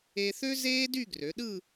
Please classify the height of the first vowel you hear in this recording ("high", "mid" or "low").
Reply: mid